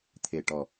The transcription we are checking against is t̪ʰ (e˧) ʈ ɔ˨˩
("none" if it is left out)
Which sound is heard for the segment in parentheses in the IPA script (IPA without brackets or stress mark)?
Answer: e˨˩